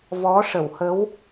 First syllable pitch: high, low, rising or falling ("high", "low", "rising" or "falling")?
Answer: rising